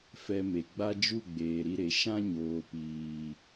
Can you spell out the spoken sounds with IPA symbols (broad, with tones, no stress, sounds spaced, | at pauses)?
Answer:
f ɛ˧ m e˨ ɡ͡b a˦ d͡ʒ u˦˨ ɡ͡b eː˨ ɾ i˧ ɾ e˨ ʃ ã˦ ɲ oː˨ p iː˨